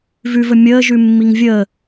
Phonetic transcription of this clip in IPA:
v ʉ v ə mʲ əː ʒ ʉ mː i ŋ vʲ əː

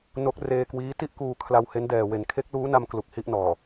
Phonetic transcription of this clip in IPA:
n o˦˥ k̚ r eː˧ k w iː˦˥ t i˥˩ ʔ k uː˧ kʰ l a˧ w h e˦˥ n d ɛː˨˩ w e˩˦ n kʰ e˦˥ k̚ l uː˦˥ n a˧ m k l u˨˩ k̚ h i˥˩ ʔ n ɔː˨˩

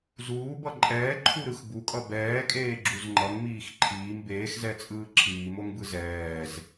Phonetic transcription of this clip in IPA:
z uː b ʌ ǃʼ ɛː ǃʰ u ɾ ɯ x b u kʼ ʌ b ɛː kʼ eː ɡ͡ǁ u z ŋ͡ǃ ʌ ŋ m iː x ǃʰ iː m b eː x z ɛ t͡sʼ ɯː ǁʰ iː m o ŋ b ɯ z ɛː z

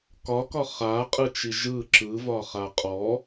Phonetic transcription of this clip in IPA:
k ɒ k ɒ χ a qʼ ɯ t͡ʃ i ʒ ɯ ǁ ɯ v ɒ χ a qʼ ɔ

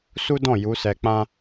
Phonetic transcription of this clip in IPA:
s u˦ d ɔ̃˦˨ j u˨˦ s ɛ˧ k͡p ã˦

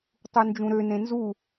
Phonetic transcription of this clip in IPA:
tˤ u n d͡ʒ ũ ɾ ø n ẽ n z u

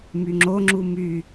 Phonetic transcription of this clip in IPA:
m y ŋ͡ǁ o ŋ͡ǁ u m y

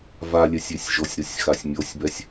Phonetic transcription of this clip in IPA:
v a lʲ ɛ sʲ e sʲ ʒ o sʲ ɾ o sʲ x a sʲ mʲ o sʲ b ɛ sʲ

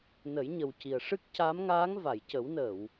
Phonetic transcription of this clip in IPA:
n ə˨˩˦ j ɲ ə˨˩ w c i˨˩ ə̯ ʂ ɨ˦˥ k̚ c a˧˥ m ŋ aː˧˥ ŋ v a˨˩˨ j c ə˨˩˦ w n əː˨˩˨ w

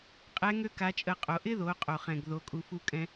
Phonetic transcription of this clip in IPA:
qʼ ɛ˧˥ ŋ ø˥ k a˧˥ t͡ʃʼ ə˧ qʼ o˩˧ ʔ ɪ˥ ð o˩˧ qʼ o˩ χ ɛ̃˩ ɡ ð o˩˧ kʼ u˩˧ f u˧ kʼ ɛ̃˧

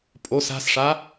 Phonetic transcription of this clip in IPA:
pʼ o s a̤ s ʂ a

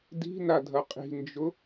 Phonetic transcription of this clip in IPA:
d i̤ n a dʱ ɐ qʼ i̤ n d͡ʒ ʊ

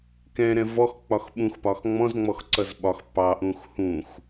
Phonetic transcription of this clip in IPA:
k ɛ̃ ɾ ɛ̃ v ɔ x k͡p ɒ x ɓ ũ x p ɒ x ŋ͡m ɔ̃ z ŋ͡m ɔ x ǀ ʌ z ɓ ɒ x p ɑ ʔ ũ x h ũ x

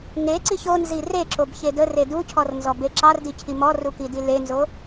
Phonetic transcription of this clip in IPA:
ŋ e ǀ i ç o n z i r e ǁ o b ç e d ə r e d u cʰ ɔ r n z ɔ b e ǁ ɑ r d i cʰ i m ɔ r u k i d i l e n z o

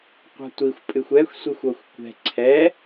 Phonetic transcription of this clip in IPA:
qʷ a̤ tʷ i xʷ pʼ ɨ xʷ ɛ xʷ sʷ i xʷ ɔ xʷ kʷ ɛ̤ ǀʰ ɛ

